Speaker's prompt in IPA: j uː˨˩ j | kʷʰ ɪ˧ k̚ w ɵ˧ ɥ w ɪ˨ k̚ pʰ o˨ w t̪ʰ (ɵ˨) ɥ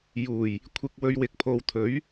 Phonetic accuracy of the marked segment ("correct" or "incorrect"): incorrect